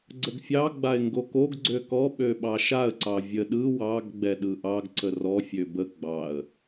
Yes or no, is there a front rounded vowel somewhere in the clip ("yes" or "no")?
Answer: yes